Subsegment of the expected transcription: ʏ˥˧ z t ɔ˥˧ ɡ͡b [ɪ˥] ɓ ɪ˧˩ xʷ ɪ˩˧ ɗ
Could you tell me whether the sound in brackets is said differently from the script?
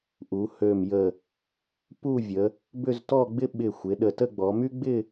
no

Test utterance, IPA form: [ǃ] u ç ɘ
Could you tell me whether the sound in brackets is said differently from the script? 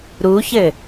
yes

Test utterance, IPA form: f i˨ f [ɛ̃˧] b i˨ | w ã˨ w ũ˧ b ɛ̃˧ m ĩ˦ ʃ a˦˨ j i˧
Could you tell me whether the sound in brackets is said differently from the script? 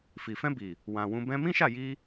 no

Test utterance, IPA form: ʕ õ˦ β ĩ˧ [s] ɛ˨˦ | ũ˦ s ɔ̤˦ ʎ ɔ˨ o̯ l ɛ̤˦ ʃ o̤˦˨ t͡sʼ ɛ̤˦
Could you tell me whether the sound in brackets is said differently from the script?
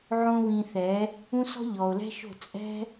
yes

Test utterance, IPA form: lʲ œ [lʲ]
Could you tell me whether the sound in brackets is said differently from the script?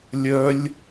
no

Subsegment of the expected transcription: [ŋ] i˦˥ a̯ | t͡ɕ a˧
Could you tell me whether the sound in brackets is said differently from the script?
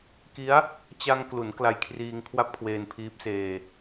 yes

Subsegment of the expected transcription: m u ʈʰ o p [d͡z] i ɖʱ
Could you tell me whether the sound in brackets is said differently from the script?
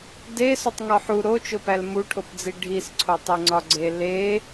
no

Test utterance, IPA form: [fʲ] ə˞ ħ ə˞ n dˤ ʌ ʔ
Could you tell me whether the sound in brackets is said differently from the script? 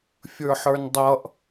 no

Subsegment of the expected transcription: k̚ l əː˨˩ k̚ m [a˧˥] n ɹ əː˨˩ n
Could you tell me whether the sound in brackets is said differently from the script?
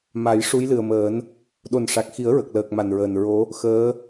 yes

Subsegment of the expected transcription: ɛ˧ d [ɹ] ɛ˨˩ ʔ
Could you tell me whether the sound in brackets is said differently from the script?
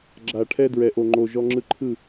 no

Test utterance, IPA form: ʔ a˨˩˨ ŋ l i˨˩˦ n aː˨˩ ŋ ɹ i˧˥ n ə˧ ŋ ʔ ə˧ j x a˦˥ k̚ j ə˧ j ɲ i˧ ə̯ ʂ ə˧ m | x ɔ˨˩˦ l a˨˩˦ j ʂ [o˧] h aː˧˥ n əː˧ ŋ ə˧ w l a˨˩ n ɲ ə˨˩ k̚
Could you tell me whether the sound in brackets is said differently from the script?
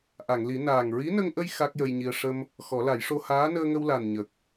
no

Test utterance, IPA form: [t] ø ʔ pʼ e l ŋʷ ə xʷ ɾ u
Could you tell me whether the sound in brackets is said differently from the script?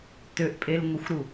no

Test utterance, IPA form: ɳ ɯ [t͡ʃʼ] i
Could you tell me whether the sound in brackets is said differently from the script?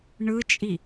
no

